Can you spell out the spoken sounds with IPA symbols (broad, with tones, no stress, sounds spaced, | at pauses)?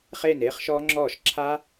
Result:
χ eː˥˩ n eː˦˥ χ ʃ ɔː˦˥ ŋ͡ǁ ɔː˥˩ ʃ ǁʰ a˦˥